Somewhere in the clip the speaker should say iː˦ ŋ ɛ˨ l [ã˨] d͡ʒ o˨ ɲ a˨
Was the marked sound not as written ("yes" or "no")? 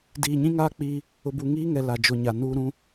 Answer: yes